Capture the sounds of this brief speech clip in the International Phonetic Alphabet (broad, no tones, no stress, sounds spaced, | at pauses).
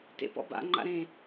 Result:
t ḛ p ɔ̰ b a̰ ŋ͡ǃ a̰ ɾ ẽ